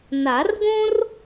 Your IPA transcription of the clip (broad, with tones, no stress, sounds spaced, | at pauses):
n a˨˩˦ r ɡ õ˥ r